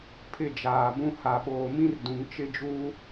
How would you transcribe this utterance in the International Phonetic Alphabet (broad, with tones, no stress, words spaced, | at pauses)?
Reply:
pʰɪ˦˨d͡ʒaː˨bũ˦ ha˨ɓoː˨mĩ˦rdũ˨ŋ t͡ʃɪ˦d͡ʒuː˦